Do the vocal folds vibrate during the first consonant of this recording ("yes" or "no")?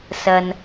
no